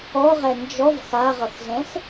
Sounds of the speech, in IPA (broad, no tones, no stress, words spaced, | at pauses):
ɔʁɛ nd͡ʒɔv xaʁʌxzɛ̃x